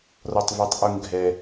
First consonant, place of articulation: alveolar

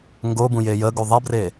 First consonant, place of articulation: velar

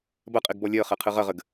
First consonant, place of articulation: labial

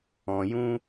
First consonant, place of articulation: palatal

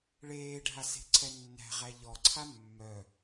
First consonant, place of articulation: retroflex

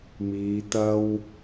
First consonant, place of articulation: labial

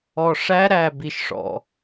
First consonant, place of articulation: retroflex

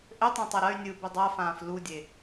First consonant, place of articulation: glottal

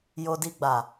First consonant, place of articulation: palatal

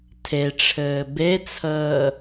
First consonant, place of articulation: alveolar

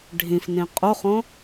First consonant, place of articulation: retroflex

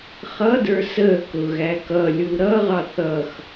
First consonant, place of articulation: uvular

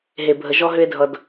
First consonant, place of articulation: glottal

